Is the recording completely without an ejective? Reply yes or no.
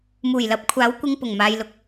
yes